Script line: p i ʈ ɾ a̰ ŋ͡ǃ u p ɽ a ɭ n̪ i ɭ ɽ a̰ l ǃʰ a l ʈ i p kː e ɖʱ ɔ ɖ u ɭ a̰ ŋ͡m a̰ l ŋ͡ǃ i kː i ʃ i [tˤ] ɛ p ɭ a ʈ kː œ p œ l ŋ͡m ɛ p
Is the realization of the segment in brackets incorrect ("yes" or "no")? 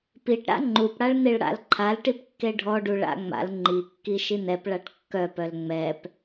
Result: yes